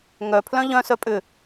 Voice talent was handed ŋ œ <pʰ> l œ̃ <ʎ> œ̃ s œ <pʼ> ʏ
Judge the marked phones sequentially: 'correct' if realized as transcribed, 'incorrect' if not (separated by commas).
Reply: correct, correct, correct